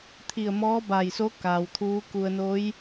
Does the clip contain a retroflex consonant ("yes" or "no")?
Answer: no